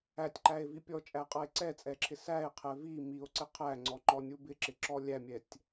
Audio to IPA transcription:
æ tʲ ǃ æ e̯ v i pʲ ɔ t͡ʃʼ æ qʼ ʌ e̯ ǀ ɛ t͡sʼ ɛ ǁʰ ɪ s æ e̯ qʰ ɛ v i m i o̯ ǀ ɪ qʰ æ ŋ͡ǀ ɔ ŋ͡ǃ ɔ nʲ u b ɪ ǁ ɪ ǁ ɔ lʲ æ mʲ ɛ tʲ

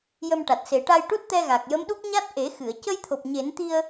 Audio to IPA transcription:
j ə˧ m ʈ a˨˩ t̚ s e˨˩˦ ʈ a˧ j ʈ u˦˥ t̚ t̪ ɛ˧ ɣ a˨˩ k̚ j ə˧˥ m ɗ u˦˥ k̚ ɲ a˦˥ t̚ ʔ e˨˩˦ x ɨ˨˩˨ ə̯ c ə˧ j t̪ʰ o˨˩ p̚ ɲ e˨˩˦ n t̪ i˧ ə̯

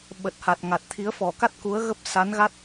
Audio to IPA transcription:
ɓ ə˨˩ t̚ h a˨˩ t̚ ŋ a˨˩ t̚ t̪ʰ i˨˦ ə̯ f ɔ˧˩ k a˦˥ t̚ k u˨˦ ə̯ ɣ ə˦˥ p̚ s a˨˦ n ɣ a˦˥ t̚

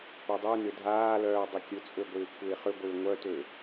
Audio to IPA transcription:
p ø dˤ y n ʏ dʱ aː l œː dˤ ɪ kʲ ʊ t͡sʼ ø ɡʷ ɪː kʷʰ ɪː χ ʏ ɡʷ ɪː ŋʷ œ t ø

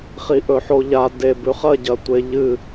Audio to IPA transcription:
χ i ʔ ɵ ħ o ʎ a d e b ʉ χ ɐ ɟ ɐ tʷ e ʎ ɨ

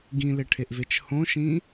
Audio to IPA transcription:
ɡ ĩ l e ʈʰ e ʔ v e t͡ʃ h õ ʃ ĩ

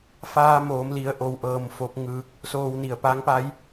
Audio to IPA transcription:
f aː˧ m oː˩˧ m l i˩˧ ə̯ ʔ o˧ w ʔ ɤː˧ m f o˧˥ p̚ ŋ ɯː˧ k̚ | s oː˧ w n i˧˩ ə̯ p a˧˥ ŋ p a˧˥ j

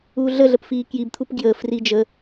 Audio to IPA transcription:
uː ɮ ə ɮ ə p f iː k j i b t̪ʰ u p ɡ j əː f r i d͡ʒ ə

